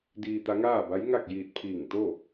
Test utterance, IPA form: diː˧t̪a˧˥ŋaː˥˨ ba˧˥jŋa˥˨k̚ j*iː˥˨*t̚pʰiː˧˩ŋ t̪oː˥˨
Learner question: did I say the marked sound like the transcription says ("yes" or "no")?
no